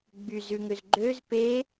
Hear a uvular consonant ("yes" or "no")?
no